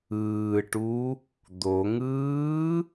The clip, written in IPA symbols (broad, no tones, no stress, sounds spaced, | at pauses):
ɯː ʈ u | d̪ o ŋ ɯː